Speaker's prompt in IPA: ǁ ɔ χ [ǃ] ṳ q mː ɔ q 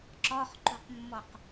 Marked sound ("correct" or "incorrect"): correct